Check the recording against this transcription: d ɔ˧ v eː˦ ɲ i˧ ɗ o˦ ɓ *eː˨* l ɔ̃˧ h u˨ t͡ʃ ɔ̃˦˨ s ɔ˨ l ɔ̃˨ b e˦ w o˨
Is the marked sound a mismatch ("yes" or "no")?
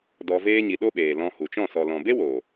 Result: no